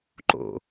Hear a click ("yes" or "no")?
yes